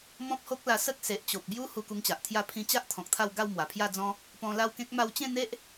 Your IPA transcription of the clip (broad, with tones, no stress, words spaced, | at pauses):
mɔ̃˦p̚ho˦k̚la˧ sə˦k̚ se˨ʔ t͡ɕo˨p̚bju˦ hu˧ku˧ŋt͡ɕa˨ʔt̪ʰja˥˧ pʰĩ˧t͡ɕa˦ʔ t̪ʰɔ̃˨k̚t̪ʰa˥˧w ɡa˥˧wmwa˨˩pʰja˥˧d͡zɔ̃˦ | pɔ̃˧la˥˧wkẽ˦k̚ ma˧wt͡ɕẽ˥˧n̪e˦ʔ